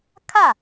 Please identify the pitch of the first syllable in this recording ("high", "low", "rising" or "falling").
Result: falling